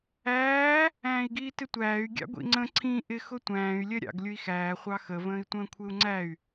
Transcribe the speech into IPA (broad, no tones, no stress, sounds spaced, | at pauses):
æː | æ̃ː i̯ ɡ iː t ɪ tʷ æː y̯ ɡʲ ɑ̰ ɡʷ ḭ ŋ͡ǀ ə̃ ǀʰ ĩ ʔ ɪ x ʊ tʷ æ̃ː y̯ lʲ ɜ ɾʲ ɑ̰ ɡ lʲ ʊ i̯ x æː χʷ ɑ x ə v ə̃ː i̯ tʷ ə̃ː kʷʰ ɪ u̯ ŋ͡ǀ æ y̯